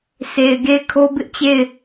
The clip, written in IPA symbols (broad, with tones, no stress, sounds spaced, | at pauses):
sʰ e˨ ɪ̯ ɡ e˦˨ ɪ̯ kʰ o˦ b ɪ˦ ʔ t͡ɕ e˦˨ ɪ̯